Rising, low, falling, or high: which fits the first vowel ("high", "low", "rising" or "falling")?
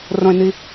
low